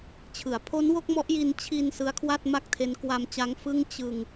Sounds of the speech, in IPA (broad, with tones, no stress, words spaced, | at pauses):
t͡ɕʰɯ˩˦a̯pʰo˦˥n wo˥˩k̚mɔ˦˥ʔji˧n t͡ɕʰi˧n sɯ˦˥a̯kʰwa˥˩t̚ma˥˩k̚tʰe˦˥n kwa˧mt͡ɕa˦˥ŋ fɯ˥˩ŋ t͡ɕɯ˧ŋ